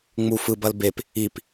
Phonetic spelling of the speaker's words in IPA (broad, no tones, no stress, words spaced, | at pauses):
ŋ͡mu fɯbɐl bep | ip